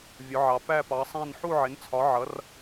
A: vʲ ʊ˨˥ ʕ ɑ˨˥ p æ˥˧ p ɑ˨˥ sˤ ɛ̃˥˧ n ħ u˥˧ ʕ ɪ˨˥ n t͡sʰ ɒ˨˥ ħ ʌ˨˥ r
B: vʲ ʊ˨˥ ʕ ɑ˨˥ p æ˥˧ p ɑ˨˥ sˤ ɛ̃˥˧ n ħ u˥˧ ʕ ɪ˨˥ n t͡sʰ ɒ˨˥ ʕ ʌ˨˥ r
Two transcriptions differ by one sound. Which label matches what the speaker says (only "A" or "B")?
B